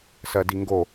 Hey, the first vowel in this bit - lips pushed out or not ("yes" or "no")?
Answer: no